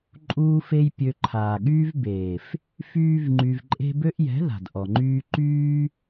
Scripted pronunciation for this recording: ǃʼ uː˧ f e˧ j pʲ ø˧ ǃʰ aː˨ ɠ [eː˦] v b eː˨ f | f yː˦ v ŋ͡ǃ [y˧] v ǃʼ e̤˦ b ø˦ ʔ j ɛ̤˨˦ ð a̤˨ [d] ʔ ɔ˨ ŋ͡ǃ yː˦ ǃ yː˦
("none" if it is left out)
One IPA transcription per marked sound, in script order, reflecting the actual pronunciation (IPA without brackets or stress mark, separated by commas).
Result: yː˦, y˧, d